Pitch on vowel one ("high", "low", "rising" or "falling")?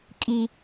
high